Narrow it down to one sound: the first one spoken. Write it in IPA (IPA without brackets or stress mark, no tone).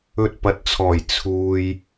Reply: ɵ